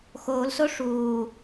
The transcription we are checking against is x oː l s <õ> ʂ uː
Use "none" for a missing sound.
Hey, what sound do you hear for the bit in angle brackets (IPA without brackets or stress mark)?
o